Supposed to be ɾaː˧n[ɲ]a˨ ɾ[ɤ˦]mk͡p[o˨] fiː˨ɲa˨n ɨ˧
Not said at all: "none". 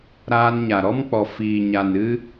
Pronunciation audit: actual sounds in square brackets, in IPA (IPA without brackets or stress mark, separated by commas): ɲ, ɔ˦, ɔ˨